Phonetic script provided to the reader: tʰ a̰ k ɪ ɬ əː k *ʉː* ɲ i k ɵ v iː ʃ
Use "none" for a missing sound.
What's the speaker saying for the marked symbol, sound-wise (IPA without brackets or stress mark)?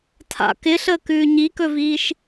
ʉː